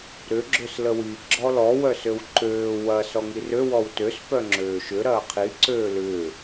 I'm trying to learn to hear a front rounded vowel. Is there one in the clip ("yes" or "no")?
yes